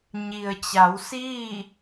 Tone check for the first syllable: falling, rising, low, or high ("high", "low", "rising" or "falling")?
low